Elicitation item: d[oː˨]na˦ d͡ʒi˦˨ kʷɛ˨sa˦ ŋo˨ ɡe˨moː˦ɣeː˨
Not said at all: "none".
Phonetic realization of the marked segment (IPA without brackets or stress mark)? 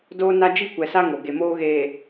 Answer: oː˦